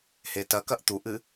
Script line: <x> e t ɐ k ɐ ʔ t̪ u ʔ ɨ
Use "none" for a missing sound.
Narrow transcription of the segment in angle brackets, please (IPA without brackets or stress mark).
h